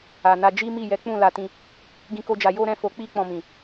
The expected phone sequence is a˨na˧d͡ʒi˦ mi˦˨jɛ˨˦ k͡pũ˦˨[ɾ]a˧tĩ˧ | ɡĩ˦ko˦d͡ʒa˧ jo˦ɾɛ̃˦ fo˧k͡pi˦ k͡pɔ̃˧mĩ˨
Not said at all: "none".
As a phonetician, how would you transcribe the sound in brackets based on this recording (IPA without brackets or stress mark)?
l